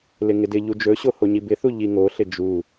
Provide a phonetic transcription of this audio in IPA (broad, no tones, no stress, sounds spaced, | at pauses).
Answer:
l ɪ ŋ ɪ d ɪ ʎ u d͡ʒ ɵ ɕ o h o ɲ i b ɪ θ u ʎ i ŋ o ɬ ɪ d͡ʒ u